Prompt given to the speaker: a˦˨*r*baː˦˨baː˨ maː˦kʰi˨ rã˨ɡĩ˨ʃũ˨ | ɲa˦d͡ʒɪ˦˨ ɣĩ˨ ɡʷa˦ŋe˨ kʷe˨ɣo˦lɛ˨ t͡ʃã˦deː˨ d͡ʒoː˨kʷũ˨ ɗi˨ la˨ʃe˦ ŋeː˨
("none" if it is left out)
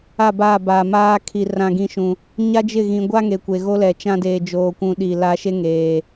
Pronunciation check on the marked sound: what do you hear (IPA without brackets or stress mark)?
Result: none